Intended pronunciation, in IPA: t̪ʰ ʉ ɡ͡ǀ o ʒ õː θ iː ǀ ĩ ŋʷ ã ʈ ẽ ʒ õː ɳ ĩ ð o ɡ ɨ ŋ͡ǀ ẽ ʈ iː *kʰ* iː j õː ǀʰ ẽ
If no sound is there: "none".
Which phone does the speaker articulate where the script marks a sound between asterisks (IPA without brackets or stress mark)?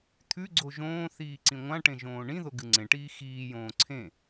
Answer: x